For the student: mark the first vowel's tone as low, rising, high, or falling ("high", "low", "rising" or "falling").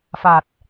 low